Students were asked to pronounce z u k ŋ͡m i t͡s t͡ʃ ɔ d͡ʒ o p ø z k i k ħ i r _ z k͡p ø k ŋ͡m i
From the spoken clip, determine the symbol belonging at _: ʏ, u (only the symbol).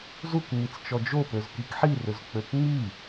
ʏ